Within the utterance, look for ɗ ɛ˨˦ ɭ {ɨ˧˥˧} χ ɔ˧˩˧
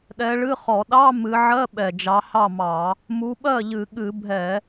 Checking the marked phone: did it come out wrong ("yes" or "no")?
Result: no